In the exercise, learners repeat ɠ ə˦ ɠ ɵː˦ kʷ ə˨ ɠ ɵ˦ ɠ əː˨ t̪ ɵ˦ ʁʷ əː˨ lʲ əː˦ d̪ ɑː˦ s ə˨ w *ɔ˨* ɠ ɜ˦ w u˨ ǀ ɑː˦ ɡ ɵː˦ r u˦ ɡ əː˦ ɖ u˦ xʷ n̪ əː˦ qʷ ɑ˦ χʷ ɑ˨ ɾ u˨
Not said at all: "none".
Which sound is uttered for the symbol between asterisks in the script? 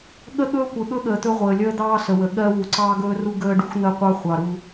ə˨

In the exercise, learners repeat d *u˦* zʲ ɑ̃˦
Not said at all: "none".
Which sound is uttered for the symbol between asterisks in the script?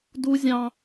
u˦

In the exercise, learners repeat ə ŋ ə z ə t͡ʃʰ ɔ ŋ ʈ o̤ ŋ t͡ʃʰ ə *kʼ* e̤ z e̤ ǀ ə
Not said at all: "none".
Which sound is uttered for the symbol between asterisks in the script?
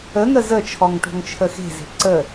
x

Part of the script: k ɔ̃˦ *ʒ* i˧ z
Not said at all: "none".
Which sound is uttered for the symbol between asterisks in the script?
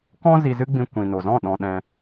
z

